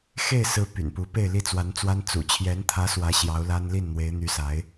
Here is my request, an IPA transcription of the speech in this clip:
x e˥˩ ɪ̯ s ɹ̩˧˥ p y̰˨˩ n p u˧˥ p e˥˧ ɪ̯ l i˥˩ t͡s w a˧˥ n t͡s w a˥ n t͡s ṵ˨˩ t͡ɕʰ j ɛ˧˥ n t̪ʰ ä˧˥ s w ä˧˥ ɕ j ɑ˧˥ ʊ̯ l a˥ n l i˥˩ n n̪ w e˧˥ ɪ̯ n̪ y˧˥ s a˧˥ ɪ̯

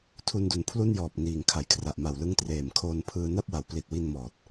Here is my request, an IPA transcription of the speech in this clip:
tʰ u˧ n d u˩˦ n pʰ l u˥˩ n j ɔː˨˩ p̚ n iː˨˩ ŋ kʰ a˩˦ j kʰ r a˨˩ ʔ m a˨˩ w l ɯ˦˥ ŋ t r eː˨˩ m kʰ oː˧ n pʰ ɯː˧ n a˥˩ p̚ w a˩˦ w p l i˨˩ t̚ w i˧ n m ɔː˨˩ t̚

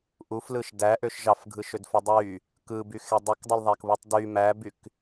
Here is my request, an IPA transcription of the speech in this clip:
ʔ u f l ɯ ʃ d æ ʔ ø ʃ ʒ ɑ f ɡʱ ɯ ʃ ø d f o dˤ y | k ɯ b y x e dˤ u k dˤ ɯ l ðˤ æ k β u tˤ d y m æ b y k

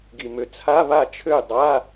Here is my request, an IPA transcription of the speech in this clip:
ɡ i˨˩ m ø˨˩ t͡sʰ a˧˥˧ β a˥˩ t͡ʃʰ ø˥˩ j dˤ a˧˥˧

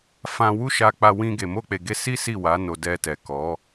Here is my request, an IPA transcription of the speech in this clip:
f ã˧ w u˦ ʃ a˧ k͡p a˧ w ĩ˧ ɡ e˨ m o˧ k͡p e˨ ɡ e˧ s i˦ s i˦˨ w a˨˦ n o˧ d ɛ˧ t ɛ˨ k ɔ˨˦

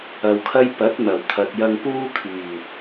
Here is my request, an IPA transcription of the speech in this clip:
ɐ˨ w kʰ ɐ˥ j p ɐ˨˥ t̚ n̪ ɐ˨˩ w t̪ʰ ɐ˨ t̚ j ɐ˧ ŋ p uː˥ kʰ yː˨˩

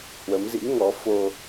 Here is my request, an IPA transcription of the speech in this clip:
h w ə˨˦ m z ḭ˧˥ ŋ ɔ˨˦ f o˧

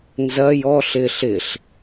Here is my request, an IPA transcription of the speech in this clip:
n z ɐ j ɔ ɬ ɪ ɬ ɪ ɬ

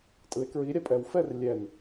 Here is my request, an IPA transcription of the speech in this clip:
tʼ ɯ e̯ k ɹ i ɾʲ a pʼ ɛ w f ɛ r lʲ ɛ n

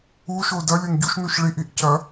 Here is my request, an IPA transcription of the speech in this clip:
u ʃ o d ɐ lʲ o n ɟ u ʃ n u ʃ ɭ i ʔ i ʔ c ɐ

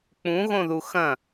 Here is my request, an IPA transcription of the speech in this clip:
k͡p ũ ɣ õ ð u x ɐ̃

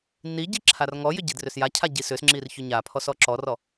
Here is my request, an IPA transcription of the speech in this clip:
nː i ɟ i ǁʰ a r ŋ ɔ j ʏ ɟ i d r ʏ s j a cʰ a ɟ i s ʏ s ŋ͡ǁ i r ç ʏ ɲ a pʰ ɔ s ɔ ǁ ɔ r ɔ

